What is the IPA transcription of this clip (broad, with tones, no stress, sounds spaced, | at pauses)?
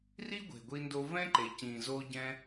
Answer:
r i˦ ɡʷ e̤˨ ɡʷ i˧ n d o˧ v ɛ̃˦ ǃ e˨ c ĩ˨ z o˧ ɟ ɛ̃˦